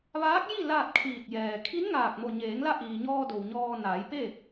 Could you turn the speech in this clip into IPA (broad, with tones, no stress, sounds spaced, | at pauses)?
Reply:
ʋ aː˧˥ k̚ j i˥˨ l aː˥˨ t̚ kʰ iː˧˩ t̚ j ɛː˩ kʰ i˧˥ n ŋ aː˧˩ k̚ m o˧˩ ɲ eː˩˧ ŋ l a˧ ʔ iː˩ ɲ ɔː˧ d o˩ w ɲ ɔː˧ n aː˩˧ j p e˥˨